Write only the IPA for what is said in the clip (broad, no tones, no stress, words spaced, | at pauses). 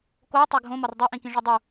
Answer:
koi̯ tˤeɡʱõ mɒrdˤi ʔĩkĩʐɒdˤu